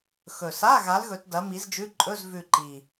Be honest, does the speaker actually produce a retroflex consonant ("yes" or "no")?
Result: no